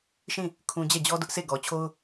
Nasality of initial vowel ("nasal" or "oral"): nasal